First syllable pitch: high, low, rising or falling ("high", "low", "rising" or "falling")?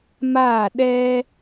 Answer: falling